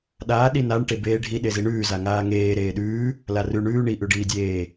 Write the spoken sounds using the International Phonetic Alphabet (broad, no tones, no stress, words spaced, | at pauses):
ɗaː ɗinaɳ ʈebeːɖʱi ɗeziɳʉː zaŋaːŋeː ɾeːɗʉː | larʉ ɳʉː ɳi ʔʉɖiːdʲeː